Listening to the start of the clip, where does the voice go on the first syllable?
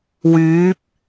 rising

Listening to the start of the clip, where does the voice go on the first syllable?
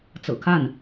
low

